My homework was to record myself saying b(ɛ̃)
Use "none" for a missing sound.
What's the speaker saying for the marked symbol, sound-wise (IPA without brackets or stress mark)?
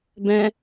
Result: ɛ̃